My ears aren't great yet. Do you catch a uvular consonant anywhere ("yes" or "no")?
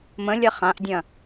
yes